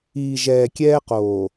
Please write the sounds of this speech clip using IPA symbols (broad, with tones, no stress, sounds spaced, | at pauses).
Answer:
iː˨ ʒ ɛː˨ kʲ ɛː˦ q oː˨